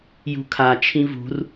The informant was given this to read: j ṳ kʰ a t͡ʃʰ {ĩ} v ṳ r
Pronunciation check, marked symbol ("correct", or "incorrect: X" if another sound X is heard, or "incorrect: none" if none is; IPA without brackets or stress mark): correct